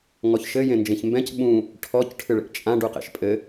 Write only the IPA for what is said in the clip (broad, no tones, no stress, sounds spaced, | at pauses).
ŋ ɔ ç ʃ ɘ j ẽ n d͡ʒ ẽ ç m b ɛ̃ c ɓ ũ | ʈʰ ɔ c ʈʰ ɨ ɭ ḛ ʔ t͡ʃʼ ã ɖ u q ḛ ʃ pʼ ɘ